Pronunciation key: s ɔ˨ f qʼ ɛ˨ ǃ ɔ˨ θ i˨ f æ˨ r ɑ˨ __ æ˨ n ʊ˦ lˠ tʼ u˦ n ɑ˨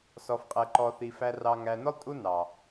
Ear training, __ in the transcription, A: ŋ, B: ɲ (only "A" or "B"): A